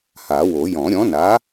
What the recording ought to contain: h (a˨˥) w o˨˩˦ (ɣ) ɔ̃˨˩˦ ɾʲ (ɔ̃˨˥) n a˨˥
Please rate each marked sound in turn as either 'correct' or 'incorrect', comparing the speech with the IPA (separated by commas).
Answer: incorrect, incorrect, correct